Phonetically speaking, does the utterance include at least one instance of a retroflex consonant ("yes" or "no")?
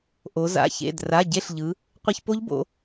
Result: no